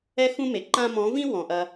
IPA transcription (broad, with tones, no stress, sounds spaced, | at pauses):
ɛ˦ x ũ˦ m e˨ ǃ ã˦ m ɔ̃˨˦ v ĩ˦ w ɔ̃˨ ʔ ɐ˧